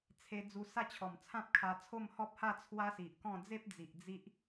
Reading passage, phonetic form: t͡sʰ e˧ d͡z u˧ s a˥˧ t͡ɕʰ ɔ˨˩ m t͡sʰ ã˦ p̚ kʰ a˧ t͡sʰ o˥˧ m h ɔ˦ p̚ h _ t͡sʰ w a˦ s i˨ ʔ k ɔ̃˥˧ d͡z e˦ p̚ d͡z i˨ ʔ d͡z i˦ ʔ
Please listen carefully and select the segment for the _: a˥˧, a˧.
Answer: a˥˧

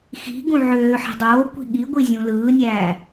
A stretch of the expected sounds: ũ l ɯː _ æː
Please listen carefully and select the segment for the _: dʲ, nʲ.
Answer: nʲ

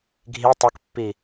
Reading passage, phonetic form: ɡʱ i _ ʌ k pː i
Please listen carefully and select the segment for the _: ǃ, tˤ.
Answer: tˤ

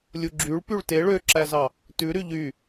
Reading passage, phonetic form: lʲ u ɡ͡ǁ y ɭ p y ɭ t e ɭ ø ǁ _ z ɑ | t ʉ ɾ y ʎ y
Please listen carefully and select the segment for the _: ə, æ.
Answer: æ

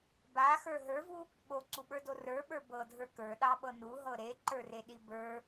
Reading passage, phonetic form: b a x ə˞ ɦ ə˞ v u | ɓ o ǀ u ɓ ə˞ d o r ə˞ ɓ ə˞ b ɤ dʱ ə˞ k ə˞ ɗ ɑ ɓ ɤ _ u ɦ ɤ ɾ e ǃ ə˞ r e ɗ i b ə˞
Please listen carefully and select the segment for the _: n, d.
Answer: n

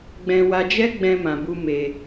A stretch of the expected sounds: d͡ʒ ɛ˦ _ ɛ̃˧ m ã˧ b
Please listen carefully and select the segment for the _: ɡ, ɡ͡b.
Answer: ɡ͡b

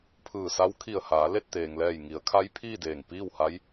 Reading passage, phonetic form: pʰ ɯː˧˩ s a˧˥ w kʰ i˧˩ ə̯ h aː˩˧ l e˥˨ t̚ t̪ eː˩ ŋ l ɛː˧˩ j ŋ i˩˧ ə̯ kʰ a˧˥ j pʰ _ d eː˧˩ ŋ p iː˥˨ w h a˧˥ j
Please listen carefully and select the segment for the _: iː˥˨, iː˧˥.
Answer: iː˥˨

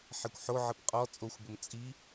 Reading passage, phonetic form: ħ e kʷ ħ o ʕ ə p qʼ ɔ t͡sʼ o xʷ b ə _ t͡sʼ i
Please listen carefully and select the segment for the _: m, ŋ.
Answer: m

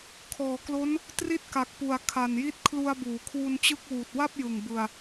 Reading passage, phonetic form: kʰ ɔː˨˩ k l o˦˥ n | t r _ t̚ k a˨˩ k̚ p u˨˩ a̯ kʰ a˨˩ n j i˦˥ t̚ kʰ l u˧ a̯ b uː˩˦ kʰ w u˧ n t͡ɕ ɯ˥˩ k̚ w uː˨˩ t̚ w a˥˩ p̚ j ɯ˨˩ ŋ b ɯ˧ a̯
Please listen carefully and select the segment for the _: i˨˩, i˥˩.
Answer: i˥˩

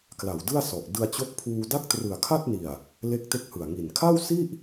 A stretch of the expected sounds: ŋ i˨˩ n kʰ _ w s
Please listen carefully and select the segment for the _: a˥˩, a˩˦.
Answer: a˥˩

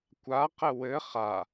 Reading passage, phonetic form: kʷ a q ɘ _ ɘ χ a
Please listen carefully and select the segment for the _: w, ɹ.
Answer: w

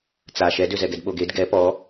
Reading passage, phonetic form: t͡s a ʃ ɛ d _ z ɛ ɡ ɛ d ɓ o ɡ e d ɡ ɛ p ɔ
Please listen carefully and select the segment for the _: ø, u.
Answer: ø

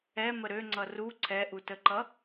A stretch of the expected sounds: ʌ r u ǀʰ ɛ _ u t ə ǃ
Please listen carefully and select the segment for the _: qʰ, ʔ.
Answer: ʔ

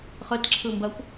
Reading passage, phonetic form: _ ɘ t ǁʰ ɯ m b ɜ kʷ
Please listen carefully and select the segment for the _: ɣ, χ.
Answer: χ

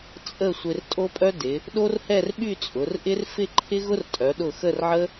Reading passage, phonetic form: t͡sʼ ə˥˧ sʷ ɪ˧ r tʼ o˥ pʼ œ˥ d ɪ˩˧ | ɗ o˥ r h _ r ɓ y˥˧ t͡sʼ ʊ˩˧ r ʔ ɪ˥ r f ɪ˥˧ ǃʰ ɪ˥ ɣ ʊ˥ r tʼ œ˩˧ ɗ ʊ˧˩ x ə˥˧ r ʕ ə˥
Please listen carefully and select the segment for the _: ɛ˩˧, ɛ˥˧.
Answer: ɛ˥˧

